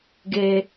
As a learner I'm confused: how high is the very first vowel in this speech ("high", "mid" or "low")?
mid